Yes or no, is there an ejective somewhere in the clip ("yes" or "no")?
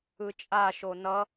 yes